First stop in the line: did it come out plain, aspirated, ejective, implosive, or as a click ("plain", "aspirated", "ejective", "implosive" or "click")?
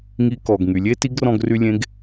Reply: plain